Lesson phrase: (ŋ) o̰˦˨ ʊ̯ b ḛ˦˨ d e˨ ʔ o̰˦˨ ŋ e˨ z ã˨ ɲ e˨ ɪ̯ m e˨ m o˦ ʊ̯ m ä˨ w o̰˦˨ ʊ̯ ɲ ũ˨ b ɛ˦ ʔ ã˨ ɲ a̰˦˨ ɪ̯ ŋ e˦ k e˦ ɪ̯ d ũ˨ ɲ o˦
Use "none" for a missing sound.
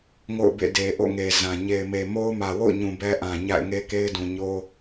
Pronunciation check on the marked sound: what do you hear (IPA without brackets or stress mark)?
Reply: ŋ